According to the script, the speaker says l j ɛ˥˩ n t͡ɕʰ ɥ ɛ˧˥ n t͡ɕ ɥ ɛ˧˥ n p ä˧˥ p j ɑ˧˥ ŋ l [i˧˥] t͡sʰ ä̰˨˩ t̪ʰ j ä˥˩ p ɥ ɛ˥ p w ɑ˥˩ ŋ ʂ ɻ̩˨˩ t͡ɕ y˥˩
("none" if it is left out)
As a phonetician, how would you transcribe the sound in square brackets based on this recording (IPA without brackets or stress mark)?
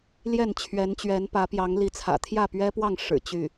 i˧˥